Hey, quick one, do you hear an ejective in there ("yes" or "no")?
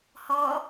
no